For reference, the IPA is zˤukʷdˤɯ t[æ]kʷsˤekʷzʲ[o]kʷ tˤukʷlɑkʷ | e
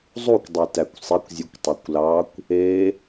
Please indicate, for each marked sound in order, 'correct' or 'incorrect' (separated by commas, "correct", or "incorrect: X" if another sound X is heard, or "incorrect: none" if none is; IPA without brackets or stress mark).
correct, incorrect: u